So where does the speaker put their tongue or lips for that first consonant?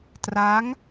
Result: tongue tip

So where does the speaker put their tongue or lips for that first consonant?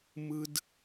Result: lips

